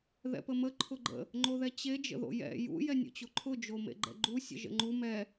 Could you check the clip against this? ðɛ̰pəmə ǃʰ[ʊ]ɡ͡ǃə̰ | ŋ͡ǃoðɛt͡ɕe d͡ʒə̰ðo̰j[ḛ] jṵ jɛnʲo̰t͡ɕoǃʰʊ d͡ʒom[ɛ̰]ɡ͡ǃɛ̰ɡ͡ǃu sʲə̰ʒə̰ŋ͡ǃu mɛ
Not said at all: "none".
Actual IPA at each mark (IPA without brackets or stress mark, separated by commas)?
ʊ, ɛ̰, ḛ